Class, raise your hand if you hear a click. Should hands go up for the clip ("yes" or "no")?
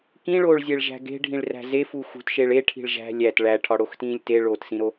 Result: no